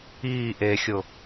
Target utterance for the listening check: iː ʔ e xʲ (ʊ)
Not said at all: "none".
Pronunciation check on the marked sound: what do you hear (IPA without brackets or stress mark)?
ʊ